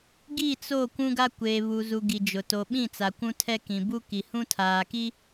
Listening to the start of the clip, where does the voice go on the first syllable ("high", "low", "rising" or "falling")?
falling